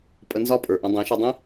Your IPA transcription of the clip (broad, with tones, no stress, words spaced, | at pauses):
pʼə˧nzɒ˦˨pʼə˞˨ʔɐ̃˧ dˤɛ̃˨˦ʃɒ˧dˤĩ˦